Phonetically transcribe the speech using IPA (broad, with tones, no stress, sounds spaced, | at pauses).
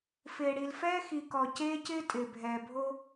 f ɪː˨ ɽ i˨ l f ɛː˦ x i˨ k ɔ˨ c eː˦ c ɪː˦ tʼ ɪː˨ bʱ ɛː˨ bʱ o˦